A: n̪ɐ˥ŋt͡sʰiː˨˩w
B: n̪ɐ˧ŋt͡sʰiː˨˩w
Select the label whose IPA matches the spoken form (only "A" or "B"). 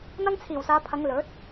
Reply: A